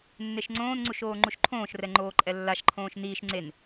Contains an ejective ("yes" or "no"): yes